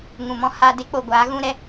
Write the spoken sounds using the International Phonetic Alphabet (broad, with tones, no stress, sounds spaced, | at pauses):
ŋ ũ˨ m ɔ̃˦ h a˧ d e˦ k͡p o˨ ɡʷ aː˨˦ ɣ ũ˦ ɾ ɛ˦